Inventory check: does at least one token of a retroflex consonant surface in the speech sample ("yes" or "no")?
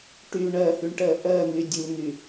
yes